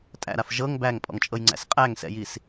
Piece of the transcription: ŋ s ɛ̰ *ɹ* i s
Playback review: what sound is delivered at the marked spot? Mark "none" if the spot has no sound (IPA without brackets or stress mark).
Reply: j